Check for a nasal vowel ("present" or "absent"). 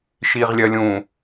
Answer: present